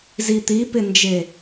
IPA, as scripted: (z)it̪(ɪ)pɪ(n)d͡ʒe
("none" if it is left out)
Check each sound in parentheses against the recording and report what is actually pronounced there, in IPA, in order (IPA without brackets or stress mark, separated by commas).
z, i, n